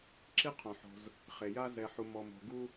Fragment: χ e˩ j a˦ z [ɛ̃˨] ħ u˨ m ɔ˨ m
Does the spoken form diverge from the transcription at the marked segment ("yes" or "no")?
yes